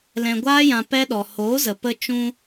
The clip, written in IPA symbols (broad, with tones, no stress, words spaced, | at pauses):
lɛ̃˨ɡʷaː˧jã˨ pɛ˧ɗɔ˨hoː˨˦zə˨ pə˦t͡ʃũ˦